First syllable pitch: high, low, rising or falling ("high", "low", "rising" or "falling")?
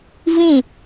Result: falling